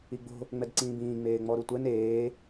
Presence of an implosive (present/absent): absent